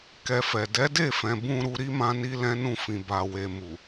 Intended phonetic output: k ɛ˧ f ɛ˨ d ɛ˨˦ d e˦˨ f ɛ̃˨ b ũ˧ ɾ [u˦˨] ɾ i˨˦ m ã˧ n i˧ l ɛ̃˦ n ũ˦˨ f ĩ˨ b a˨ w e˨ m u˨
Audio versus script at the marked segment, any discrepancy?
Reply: yes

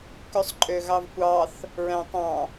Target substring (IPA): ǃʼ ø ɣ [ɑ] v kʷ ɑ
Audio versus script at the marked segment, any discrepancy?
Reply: no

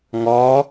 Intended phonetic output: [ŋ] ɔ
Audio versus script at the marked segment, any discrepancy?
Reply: no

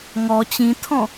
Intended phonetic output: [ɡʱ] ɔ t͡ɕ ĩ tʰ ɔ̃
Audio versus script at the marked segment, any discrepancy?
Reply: yes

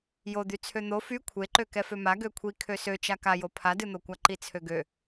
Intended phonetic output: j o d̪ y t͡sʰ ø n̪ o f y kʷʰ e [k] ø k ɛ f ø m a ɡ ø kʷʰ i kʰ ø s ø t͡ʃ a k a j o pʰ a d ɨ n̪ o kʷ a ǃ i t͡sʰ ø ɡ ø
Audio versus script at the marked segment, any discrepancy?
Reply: yes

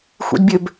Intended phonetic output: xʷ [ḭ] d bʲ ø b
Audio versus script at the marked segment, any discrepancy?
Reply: no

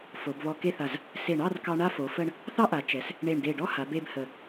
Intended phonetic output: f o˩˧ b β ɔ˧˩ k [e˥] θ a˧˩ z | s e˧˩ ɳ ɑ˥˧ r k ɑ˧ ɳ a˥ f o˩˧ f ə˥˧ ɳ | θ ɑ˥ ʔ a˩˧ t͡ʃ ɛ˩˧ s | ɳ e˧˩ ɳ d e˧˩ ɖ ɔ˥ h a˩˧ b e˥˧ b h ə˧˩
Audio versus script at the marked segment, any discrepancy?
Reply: yes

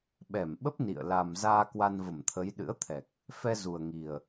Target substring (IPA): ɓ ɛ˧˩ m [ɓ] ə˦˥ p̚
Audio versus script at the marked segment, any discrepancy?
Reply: no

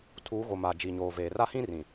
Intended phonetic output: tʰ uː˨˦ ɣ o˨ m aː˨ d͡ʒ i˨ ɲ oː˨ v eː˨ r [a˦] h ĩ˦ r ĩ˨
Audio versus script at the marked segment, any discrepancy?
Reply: no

